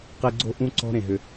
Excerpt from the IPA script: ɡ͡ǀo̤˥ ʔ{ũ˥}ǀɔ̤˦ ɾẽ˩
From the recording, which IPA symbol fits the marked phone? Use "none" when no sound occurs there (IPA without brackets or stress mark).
ũ˥